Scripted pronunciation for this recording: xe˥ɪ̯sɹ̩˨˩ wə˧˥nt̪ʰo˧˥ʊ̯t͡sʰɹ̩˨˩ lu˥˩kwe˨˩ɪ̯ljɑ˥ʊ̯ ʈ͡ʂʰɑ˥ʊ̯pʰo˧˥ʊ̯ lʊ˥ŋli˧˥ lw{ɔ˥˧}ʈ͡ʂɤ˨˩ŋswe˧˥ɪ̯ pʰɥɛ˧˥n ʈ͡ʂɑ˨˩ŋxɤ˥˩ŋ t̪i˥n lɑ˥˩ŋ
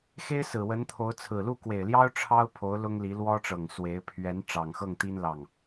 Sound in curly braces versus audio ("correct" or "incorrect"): incorrect